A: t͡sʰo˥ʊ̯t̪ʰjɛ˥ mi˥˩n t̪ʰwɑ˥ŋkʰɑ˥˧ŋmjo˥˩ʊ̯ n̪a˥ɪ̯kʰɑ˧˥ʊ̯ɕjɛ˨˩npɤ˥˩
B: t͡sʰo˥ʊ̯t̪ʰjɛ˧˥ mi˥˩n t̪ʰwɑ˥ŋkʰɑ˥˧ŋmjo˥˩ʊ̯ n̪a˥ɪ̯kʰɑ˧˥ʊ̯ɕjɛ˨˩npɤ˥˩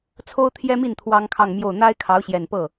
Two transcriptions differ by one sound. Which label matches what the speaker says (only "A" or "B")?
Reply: A